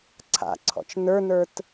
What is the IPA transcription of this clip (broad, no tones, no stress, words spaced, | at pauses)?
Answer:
ǀʰa̰ǀʰɔ̰t͡ʃ nə˞nə˞t